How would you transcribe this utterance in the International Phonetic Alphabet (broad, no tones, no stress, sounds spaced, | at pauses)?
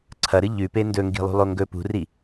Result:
ǀʰ ɐ ɾ ɨ ʎ ʉ p e n d ɵ ŋ ɡ i̤ lˠ ṳ lˠ o ŋ ɡ ɵ p ṳ r i